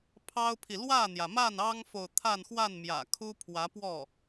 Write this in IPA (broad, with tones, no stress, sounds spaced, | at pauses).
pʰ ɑ˥ ʊ̯ pʰ i˨ l w ä˥˩ n̪ j ä˩ m a˥˩ n ɑ˥ ŋ f o˨ ʊ̯ t̪ʰ a˥˧ n x w a˥˩ n m j ä̰˨˩ kʰ u˥ pʰ w ä˧˥ p w ɔ˥˩